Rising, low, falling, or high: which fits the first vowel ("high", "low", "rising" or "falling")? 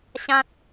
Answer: high